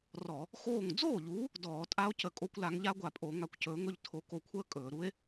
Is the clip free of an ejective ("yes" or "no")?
no